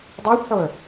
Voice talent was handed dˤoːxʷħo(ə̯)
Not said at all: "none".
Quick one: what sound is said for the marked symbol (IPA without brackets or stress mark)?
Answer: ə̯